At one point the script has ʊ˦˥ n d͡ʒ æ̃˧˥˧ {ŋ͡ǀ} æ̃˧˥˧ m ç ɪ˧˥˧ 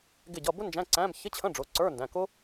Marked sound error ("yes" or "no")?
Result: yes